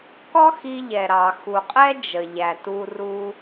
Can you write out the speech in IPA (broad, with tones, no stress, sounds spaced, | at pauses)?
k ɔ˥ x i˧ ʎ ɛ˩ ɾ ɑ˩ x u˩ qʼ ɛ˥ d͡ʒ ə˩ ʎ æ˩ t u˧ r u˧